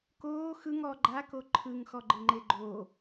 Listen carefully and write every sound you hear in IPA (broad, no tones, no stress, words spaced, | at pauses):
koː xɯ ŋɔ ɡ͡ǃa koǃʰɯŋ xɔɡ͡ǃɯŋ͡ǃeɡ͡ǃoː